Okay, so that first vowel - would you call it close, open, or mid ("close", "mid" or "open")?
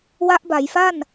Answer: open